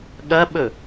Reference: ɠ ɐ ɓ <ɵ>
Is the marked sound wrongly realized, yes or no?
no